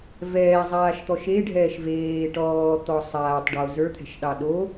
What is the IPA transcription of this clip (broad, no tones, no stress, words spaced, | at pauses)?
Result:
vɛːzˤaːʃt̪ɔʃ eɖʱɛːʃ veː ʈɔːt̪ɔ sˤaːtˤɖo zə˞t̪ʰɛ̤ʃɗɑ ɗo